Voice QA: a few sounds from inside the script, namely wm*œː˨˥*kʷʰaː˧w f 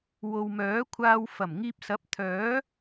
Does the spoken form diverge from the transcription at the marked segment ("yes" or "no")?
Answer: no